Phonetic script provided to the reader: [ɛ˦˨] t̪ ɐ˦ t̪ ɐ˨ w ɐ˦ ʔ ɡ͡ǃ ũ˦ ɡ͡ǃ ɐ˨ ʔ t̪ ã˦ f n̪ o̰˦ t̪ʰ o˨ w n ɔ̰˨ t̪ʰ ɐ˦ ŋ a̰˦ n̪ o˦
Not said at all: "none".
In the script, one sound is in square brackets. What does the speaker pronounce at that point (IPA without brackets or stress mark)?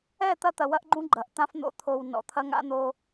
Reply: ɛ˦˨